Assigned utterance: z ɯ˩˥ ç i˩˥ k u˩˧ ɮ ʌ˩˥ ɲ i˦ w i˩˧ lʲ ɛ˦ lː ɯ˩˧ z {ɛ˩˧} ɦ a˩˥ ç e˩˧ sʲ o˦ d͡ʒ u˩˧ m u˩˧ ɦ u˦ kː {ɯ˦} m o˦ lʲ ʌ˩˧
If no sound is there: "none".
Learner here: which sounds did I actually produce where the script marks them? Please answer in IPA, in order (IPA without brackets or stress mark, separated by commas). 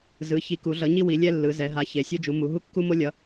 ɛ˩˧, u˦